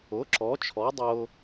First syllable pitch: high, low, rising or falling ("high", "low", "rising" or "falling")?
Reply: rising